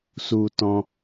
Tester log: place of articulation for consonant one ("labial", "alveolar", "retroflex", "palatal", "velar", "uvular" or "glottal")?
alveolar